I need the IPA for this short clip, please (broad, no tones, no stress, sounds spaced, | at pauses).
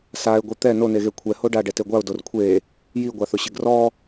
s a ɪ̯ ɡʷ i t̪ ɛ n o n e ɣ e kʷʰ ɛ h o ɖ a ɖ ɛ t e ɡʷ a ʊ̯ d o r kʷʰ e | j i ɡʷ a θ ʊ ɕ ɪ ɡ r ɔ